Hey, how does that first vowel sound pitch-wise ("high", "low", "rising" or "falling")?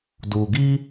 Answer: low